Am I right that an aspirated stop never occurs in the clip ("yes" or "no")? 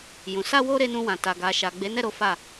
yes